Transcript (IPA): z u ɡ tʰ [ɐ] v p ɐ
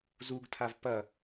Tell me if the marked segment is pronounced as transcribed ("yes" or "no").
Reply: no